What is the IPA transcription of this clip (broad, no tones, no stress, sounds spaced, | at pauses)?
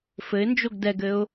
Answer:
f ɘ ɪ̯ n d͡ʒ o ɡ d ɛ ɡ ɘ ʊ̯